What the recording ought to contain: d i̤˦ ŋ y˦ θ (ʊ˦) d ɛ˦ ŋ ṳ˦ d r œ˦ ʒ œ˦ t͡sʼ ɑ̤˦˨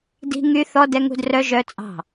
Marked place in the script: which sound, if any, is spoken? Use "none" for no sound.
ɔ˦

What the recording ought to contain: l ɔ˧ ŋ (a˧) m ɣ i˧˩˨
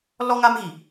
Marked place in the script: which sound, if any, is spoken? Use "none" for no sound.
a˧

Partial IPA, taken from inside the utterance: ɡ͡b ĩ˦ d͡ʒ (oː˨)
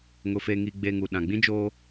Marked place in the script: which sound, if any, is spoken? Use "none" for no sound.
oː˦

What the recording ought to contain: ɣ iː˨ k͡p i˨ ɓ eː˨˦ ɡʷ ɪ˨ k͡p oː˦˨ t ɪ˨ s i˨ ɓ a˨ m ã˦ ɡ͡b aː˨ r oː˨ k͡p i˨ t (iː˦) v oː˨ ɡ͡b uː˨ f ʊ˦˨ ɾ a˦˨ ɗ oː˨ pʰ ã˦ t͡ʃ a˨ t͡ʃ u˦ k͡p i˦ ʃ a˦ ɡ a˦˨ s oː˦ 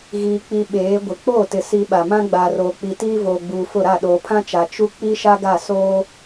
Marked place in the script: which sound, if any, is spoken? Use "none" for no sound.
iː˦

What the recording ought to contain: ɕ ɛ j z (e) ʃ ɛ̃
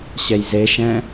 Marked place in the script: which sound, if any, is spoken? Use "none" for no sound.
e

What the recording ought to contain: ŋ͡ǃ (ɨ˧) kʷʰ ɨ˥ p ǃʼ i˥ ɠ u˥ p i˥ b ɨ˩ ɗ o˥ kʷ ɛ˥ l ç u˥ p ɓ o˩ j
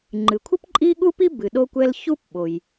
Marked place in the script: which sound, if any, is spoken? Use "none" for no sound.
ɨ˩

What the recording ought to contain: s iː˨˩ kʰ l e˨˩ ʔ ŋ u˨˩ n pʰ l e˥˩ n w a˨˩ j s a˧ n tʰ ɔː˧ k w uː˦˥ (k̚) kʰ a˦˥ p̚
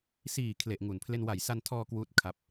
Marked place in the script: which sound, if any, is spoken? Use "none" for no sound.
t̚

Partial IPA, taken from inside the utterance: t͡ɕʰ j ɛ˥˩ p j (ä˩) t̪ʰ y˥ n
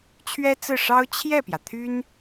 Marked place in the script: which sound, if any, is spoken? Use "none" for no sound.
ä˩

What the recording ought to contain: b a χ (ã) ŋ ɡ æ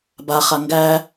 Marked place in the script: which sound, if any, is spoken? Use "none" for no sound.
a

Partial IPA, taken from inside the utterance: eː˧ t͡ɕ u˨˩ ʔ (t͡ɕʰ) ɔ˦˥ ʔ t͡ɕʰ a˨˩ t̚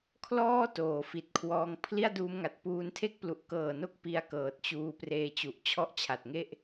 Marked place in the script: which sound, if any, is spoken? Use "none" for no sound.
t͡ɕʰ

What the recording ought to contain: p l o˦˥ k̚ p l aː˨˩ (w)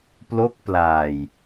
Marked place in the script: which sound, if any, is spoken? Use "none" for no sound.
j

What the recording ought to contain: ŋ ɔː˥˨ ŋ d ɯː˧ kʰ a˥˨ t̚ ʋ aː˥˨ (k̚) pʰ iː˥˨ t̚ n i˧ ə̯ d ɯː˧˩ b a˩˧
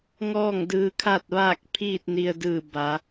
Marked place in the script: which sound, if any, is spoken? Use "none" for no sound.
k̚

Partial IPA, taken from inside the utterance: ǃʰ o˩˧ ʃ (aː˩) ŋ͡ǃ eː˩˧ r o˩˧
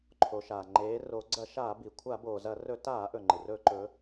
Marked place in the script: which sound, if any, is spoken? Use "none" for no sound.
aː˩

